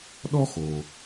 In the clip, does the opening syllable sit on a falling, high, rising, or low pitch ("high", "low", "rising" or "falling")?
high